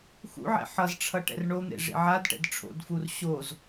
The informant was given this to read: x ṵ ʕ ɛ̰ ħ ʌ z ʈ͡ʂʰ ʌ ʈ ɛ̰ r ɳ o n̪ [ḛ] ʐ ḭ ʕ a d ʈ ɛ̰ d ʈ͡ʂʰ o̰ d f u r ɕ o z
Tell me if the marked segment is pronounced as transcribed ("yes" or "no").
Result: yes